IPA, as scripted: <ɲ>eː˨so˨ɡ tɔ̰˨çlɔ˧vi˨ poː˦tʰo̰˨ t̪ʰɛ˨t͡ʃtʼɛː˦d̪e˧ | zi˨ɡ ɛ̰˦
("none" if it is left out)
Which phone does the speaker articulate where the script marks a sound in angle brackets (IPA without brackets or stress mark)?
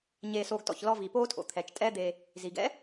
ɲ